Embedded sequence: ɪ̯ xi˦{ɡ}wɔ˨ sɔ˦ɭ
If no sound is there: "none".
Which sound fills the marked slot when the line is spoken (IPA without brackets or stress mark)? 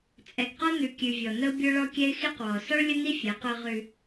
q